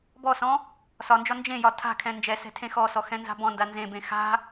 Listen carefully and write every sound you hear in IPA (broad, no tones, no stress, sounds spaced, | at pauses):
b ɔ s ɔ̃ | s ɒ n d͡ʒ ɒ n d͡ʒ ẽ j ɒ tʰ a̤ kʰ ɛ̃ n d͡ʒ ɛ s ɛ̤ tʰ ẽ x ɔ s ɔ x ɛ̃ n z a̤ b ɔ̃ n d a n z ẽ b ẽ x a̤